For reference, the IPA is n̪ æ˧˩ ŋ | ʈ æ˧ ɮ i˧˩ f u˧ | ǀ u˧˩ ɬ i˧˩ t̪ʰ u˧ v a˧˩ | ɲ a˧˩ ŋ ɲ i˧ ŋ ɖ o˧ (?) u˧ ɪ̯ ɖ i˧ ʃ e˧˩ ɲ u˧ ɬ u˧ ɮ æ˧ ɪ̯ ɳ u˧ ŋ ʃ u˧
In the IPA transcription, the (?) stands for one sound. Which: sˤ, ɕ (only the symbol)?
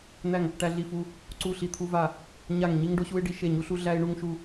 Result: ɕ